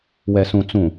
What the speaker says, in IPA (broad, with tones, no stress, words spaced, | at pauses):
wɛ˨sũ˨ t͡sũ˨